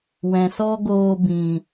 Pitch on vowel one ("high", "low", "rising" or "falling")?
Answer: low